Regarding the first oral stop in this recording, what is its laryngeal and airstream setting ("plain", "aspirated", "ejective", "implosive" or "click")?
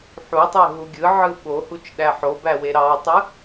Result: plain